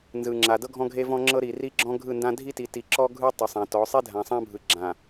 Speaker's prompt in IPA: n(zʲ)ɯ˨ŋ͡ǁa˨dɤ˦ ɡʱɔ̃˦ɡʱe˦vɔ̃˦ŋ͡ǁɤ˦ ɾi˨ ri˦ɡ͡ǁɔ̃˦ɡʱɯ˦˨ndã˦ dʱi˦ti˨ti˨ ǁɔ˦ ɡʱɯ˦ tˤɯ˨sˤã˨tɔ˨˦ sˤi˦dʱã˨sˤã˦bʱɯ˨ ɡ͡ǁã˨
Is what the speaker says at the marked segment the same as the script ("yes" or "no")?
no